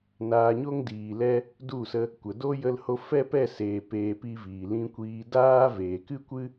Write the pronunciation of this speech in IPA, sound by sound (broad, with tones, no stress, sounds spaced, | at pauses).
n aː˧ ɲ o˦ ŋ d iː˨ l ɛ˧ | d u˦˨ s ə˧ | kʷ ə˨ d o˦ j ə˧ l h o˧ f ɛ˦ p ɛ˦˨ s eː˨ p eː˨ p i˧ v iː˨ l ĩ˧ kʷ iː˧ d aː˦ v eː˨ k ɨ˦ kʷ ɨ˦